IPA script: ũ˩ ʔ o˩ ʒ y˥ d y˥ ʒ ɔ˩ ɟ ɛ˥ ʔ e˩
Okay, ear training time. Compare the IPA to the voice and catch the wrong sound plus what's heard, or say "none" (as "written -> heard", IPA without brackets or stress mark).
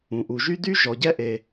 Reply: o˩ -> u˩